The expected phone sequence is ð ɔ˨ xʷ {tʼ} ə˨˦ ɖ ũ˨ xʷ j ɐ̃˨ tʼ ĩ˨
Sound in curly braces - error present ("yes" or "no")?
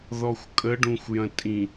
yes